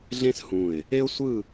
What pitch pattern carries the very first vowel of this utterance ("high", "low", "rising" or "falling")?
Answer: high